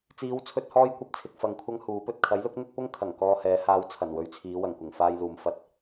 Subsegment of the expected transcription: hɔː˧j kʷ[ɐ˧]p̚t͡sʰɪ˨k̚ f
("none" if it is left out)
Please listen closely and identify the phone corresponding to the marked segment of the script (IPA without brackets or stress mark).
ɐ˧